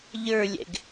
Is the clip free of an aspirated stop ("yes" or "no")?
yes